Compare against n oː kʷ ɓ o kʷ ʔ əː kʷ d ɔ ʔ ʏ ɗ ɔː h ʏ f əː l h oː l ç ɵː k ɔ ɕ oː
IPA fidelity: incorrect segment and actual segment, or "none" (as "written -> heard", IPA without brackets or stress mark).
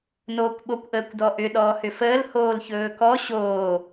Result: none